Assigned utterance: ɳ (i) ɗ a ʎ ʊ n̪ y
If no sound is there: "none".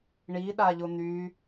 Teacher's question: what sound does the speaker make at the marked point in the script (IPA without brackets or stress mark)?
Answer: i